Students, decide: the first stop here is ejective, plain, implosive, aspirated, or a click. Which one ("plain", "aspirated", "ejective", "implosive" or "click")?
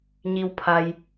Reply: aspirated